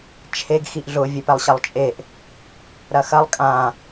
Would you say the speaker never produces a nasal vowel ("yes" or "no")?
no